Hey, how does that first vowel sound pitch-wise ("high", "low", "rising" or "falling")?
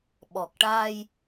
low